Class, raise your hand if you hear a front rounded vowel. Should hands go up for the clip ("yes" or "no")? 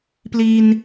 no